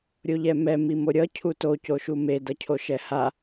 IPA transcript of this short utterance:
ɾʲoʎɛmɛ mimoɾʲʌ cʰuto coʃume dʌcʰoʃɛha

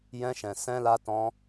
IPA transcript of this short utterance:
jɛ̃˧ʃɛ̃˨ sɛ̃˧la˧tɔ̃˧

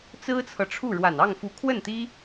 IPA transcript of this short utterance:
t͡sɹ̩˥t͡sʰɤ˨ʈ͡ʂʰu˥˩ ɻwa˨˩nɑ˥˩ŋfu˧˥ kʰwə˥˩nt̪i˥

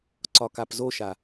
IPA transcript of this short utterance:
ǀɒkapzoʃa

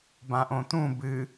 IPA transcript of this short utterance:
bãʔõt̪ũ bɨ

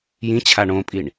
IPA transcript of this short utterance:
jĩt͡ɕʰa ɳõpʼiɳ

